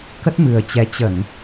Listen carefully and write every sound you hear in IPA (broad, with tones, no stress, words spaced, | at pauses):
kə˦˥t̚mɨ˨˩ə̯t͡ɕɛ˨˦ t͡ɕə˧˩˨n